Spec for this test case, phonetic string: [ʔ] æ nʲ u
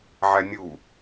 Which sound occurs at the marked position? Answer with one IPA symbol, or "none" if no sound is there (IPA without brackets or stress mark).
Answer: ʕ